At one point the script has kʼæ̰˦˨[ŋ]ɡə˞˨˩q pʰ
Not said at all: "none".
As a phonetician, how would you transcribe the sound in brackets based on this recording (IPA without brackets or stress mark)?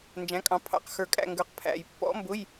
ŋ